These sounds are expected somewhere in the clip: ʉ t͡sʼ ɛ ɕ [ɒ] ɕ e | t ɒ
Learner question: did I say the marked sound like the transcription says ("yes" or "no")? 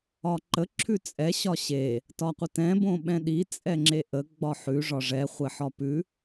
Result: yes